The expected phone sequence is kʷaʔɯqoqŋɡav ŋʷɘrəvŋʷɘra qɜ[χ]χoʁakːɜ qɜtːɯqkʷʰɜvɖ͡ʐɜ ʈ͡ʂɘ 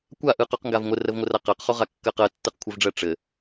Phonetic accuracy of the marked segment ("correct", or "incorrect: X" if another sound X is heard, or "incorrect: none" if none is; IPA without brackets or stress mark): incorrect: q